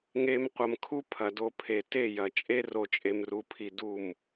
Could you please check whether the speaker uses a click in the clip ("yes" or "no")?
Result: no